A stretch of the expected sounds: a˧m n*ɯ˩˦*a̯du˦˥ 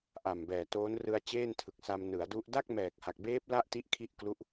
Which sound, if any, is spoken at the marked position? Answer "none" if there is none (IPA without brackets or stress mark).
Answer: ɯ˩˦